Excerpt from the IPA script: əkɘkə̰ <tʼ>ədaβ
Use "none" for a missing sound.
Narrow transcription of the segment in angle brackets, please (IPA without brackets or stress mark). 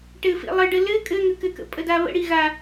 pʼ